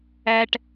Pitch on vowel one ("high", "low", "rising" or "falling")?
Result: high